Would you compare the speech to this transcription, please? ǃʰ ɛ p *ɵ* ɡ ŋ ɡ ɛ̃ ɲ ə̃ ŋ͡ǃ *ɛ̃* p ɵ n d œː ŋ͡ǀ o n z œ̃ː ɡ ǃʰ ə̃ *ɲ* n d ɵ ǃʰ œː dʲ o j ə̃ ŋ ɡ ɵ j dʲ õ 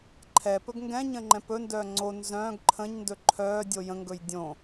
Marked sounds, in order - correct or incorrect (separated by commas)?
correct, correct, correct